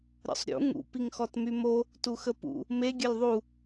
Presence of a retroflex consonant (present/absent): absent